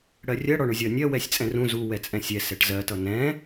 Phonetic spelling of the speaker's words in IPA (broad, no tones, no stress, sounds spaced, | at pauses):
ɽ ɜ rʲ ɜ ɽ ɔ ɳ ʊ zʲ ɒ nʲ ɜ w ɛ sʲ t͡sʼ ɛ̃ r ũ z u w ɛ t͡sʼ ɛ̃ sʲ ɛ s ɛ ʈ z ɜ t ʌ n ɛ̃